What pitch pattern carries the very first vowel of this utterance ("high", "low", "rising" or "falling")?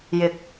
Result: rising